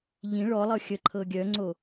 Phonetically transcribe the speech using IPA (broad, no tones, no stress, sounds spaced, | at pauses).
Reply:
ʎ ĩ ɭ ɔ lˠ ɤ xʲ ə ǃʰ ɤ ɡʲ œ ŋ͡ǀ o